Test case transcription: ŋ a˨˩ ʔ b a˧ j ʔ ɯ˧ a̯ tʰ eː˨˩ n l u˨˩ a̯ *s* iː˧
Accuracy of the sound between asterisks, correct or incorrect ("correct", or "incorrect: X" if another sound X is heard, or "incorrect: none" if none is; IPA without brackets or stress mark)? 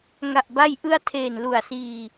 correct